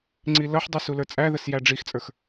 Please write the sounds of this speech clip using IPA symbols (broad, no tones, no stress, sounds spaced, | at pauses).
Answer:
ŋ͡ǀ i l ʌ ħ dˤ ʊ s u l ə˞ t͡sʼ æ ð ə s j æ ɖ͡ʐ i x t͡sʼ ə˞ x